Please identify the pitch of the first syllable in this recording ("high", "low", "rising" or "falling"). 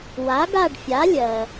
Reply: rising